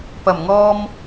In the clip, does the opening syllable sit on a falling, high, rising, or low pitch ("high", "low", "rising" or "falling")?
low